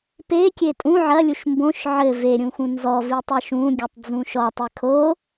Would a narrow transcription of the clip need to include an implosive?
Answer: no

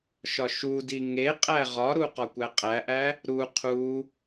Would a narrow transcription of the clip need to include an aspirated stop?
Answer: yes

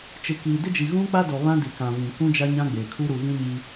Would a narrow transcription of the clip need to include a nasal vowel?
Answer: yes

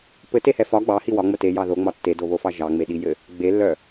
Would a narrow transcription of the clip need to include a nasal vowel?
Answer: no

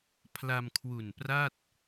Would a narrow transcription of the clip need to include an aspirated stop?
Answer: yes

